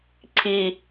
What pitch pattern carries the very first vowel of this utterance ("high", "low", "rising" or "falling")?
low